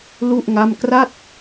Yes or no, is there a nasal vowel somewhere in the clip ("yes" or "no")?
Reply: no